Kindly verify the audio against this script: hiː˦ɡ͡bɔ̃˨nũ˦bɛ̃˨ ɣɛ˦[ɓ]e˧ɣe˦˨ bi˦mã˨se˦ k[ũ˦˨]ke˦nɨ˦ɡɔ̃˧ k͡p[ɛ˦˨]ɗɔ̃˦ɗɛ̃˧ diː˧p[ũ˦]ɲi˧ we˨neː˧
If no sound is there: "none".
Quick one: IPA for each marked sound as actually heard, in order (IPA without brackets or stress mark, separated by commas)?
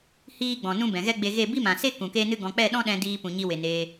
ɡ͡b, ũ˨, ɛ˦˨, ũ˨